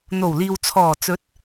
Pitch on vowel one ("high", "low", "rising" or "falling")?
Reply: low